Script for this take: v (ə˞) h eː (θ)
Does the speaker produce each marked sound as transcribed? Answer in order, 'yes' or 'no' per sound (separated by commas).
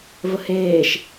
no, no